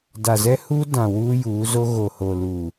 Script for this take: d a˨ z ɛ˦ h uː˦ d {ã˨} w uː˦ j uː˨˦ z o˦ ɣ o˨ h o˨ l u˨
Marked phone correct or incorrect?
correct